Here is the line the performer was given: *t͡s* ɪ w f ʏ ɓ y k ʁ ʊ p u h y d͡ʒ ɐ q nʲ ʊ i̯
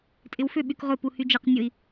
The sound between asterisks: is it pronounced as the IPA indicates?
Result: no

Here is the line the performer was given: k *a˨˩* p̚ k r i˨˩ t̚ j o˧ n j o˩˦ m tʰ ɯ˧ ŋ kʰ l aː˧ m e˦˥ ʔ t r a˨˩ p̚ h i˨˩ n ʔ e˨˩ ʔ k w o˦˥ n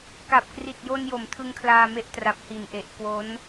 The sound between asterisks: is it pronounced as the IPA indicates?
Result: yes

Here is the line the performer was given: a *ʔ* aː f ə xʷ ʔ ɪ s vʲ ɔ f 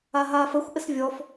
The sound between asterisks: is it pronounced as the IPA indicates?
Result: no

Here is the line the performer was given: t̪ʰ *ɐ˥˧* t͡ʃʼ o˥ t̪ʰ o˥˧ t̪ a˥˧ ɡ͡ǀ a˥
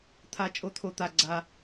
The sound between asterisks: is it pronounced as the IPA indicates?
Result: no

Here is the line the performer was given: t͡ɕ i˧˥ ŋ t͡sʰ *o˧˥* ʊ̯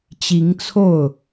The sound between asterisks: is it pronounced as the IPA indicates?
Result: no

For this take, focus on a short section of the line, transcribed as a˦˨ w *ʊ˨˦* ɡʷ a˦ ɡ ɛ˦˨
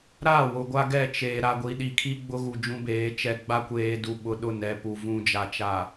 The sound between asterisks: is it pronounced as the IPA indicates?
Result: no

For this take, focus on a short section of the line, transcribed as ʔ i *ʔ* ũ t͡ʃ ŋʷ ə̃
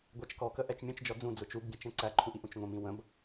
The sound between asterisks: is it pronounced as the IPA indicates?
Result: yes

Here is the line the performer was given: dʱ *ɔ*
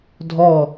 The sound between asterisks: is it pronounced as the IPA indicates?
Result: yes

